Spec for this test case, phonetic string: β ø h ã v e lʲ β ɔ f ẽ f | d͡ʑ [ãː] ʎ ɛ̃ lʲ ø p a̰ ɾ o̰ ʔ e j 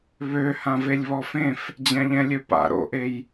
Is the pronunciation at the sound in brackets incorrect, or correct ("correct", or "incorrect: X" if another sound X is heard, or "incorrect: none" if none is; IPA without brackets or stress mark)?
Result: incorrect: ã